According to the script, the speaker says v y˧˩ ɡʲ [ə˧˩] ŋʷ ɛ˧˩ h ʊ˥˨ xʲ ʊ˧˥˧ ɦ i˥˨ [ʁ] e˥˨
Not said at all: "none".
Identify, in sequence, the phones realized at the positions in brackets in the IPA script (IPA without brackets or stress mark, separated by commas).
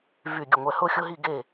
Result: ə˧˩, ɡ